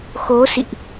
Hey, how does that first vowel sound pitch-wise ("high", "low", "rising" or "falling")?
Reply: rising